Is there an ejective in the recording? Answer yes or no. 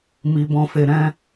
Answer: no